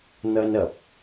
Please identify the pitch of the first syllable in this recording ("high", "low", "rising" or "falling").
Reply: high